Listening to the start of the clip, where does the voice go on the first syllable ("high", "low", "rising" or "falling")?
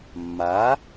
rising